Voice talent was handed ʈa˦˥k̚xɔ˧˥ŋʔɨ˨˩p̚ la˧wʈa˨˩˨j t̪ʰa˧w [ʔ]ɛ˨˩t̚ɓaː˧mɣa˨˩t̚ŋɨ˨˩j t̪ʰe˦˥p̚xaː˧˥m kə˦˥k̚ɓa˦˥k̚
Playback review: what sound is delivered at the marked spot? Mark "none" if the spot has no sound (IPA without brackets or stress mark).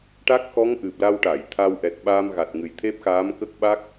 ʔ